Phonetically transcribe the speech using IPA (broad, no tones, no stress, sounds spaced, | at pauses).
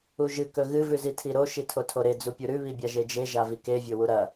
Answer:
u ʒ ɨ k ɵ ɣ ɨ v ʉ z i tʰ i ɾ o ʃ i tʰ o tʰ o ɾ e d͡z u pʲ u ɾ ʉ β i bʲ a ʒ e d͡ʒ e ʒ a v i k e vʲ o w u ɾ ɐ